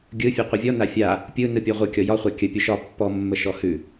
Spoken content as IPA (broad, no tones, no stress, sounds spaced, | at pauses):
ɡʲ ɯ fʲ ʉ qʷ ɯ vʲ ɔ n a fʲ a | pʲ ɯ n ɯ pʲ ɔ ʁʷ ɯ kʲ ɔ j ɒ χʷ a kʲ ə pʲ o ʃ ɒ pː ɔ mː ə ʃ ɔ h ʉ